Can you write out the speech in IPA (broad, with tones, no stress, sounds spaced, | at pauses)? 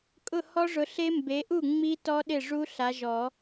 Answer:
kʼ ʊ˥˩ h ɔ˦˥ ʐ ʊ˨˦ ɬ e˦˥ m b e˨˦ ʔ u˥˩ ŋ͡m i˦˥ t ɔ˦˥ ɗ ɪ˥˩ ʐ u˦˥ ɬ a˨˦ ʒ ɔ˨˩˦